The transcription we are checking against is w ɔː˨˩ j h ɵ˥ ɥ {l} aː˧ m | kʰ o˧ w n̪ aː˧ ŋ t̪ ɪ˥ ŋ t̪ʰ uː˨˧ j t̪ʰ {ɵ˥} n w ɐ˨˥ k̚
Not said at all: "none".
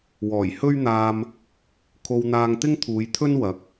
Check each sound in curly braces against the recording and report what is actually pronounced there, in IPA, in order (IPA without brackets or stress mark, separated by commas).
n̪, ɵ˥